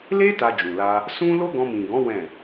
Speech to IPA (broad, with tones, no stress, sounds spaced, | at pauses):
l e˦ t a˧ d͡ʒ ũ˨ l a˧ | s ũ˦ l o˦ ɡ ɔ̃˧ m ĩ˨ ɡ ɔ̃˨˦ w ɛ̃˦˨